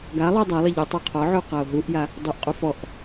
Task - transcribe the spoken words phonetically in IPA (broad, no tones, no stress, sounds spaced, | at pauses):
ɡ a lˠ u dˤ a lˠ ɪ ʎ ɪ tˤ o qʰ ɔ ʕ u q a o̯ ɦ u ʔ j a | dˤ o ʔ qʼ u f ɔ ʔ